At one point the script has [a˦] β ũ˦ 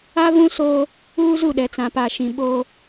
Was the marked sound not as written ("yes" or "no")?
no